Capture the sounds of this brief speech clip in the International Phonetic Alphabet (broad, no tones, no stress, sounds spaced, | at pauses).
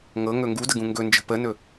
ŋ ɤ ŋ ɵ ŋ ɡ u d ə ɡ ũ ŋ ɡ ɵ n d͡ʒ ə̤ p ə n ɵ